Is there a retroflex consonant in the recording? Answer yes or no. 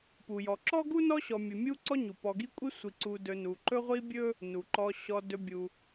no